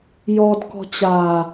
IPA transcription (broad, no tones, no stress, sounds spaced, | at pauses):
j ɔ d k ɔ̤ t͡ɕ a